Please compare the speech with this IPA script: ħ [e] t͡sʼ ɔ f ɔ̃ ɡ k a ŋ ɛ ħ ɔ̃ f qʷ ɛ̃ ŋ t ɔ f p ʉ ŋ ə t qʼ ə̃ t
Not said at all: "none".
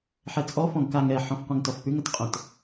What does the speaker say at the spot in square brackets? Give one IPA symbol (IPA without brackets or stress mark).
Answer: ɛ